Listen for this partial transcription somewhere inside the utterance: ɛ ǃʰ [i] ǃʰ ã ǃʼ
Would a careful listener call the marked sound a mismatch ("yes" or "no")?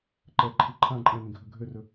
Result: no